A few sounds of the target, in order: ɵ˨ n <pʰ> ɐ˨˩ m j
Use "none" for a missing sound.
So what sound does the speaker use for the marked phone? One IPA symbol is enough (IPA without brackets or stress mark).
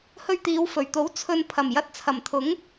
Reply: pʰ